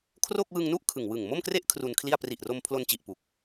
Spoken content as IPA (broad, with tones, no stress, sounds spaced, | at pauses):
kʰ r o˥˩ k̚ w ɯ˧ ŋ n u˥˩ ʔ kʰ ɯ˨˩ ŋ w ɯ˨˩ ŋ m o˥˩ m k r e˥˩ ʔ kʰ r u˧ n kʰ l i˥˩ a̯ p r i˨˩ ʔ r o˧ m pʰ l o˧ n t͡ɕ i˨˩ ʔ p u˨˩ k̚